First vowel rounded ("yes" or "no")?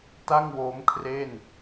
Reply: no